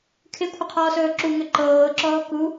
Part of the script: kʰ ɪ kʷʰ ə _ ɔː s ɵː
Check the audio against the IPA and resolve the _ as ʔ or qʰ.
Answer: qʰ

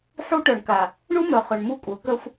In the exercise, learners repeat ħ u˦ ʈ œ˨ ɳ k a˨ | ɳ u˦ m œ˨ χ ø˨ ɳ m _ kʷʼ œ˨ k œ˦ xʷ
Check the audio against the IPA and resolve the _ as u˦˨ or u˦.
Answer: u˦˨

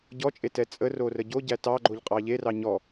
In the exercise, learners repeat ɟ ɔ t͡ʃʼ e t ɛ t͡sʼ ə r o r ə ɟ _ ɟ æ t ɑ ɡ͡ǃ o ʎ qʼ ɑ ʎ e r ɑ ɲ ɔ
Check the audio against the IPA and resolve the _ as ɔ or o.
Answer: o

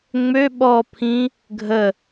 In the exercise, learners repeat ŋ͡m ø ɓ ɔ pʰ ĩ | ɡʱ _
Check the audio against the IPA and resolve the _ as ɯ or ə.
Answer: ə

